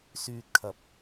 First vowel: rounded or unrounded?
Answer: rounded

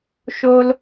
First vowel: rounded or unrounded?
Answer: rounded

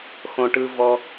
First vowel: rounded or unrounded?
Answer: rounded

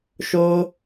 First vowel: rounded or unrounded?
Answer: rounded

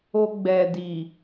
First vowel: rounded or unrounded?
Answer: rounded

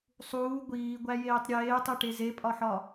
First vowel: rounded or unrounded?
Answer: rounded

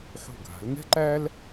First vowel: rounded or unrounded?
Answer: rounded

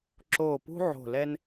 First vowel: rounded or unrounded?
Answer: rounded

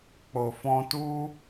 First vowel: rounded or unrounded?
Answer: rounded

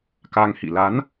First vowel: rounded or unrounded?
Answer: unrounded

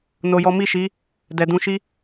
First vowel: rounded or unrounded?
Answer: rounded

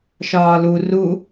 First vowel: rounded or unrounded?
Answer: rounded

